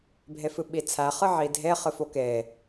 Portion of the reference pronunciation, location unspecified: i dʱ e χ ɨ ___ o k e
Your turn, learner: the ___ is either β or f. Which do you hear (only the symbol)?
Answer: f